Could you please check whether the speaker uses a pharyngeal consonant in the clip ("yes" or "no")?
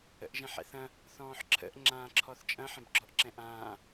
yes